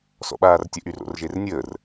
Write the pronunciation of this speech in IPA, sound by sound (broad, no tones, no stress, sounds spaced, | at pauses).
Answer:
s ɔ̰ ɓ aː r tʲ ə ʔ y r o̰ r ʒ e r nʲ əː r